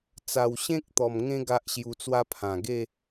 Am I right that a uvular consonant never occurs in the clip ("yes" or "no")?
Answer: yes